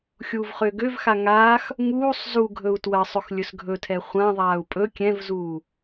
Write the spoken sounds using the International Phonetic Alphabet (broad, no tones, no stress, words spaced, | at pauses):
xʲuːvχʏːɡøvxa ŋaːx | ŋuːsˤ zu ɡʱɵu̯twɜsˤɵx lʲɵsɡʱɵtʰɛ χʷãðˤaːu̯ pʼɵ kʲɛ̃vzuː